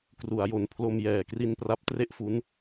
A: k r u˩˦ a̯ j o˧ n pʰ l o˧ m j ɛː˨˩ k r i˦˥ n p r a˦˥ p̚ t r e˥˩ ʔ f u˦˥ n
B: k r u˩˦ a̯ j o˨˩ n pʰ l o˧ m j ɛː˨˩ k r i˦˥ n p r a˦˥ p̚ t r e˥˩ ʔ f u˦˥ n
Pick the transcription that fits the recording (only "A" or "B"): B